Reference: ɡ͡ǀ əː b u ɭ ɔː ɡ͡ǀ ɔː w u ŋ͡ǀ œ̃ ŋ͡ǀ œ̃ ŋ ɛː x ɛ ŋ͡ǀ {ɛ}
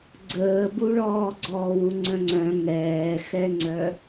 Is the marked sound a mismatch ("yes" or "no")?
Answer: yes